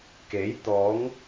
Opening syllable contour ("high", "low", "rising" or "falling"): rising